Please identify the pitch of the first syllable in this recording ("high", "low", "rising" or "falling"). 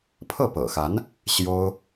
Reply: falling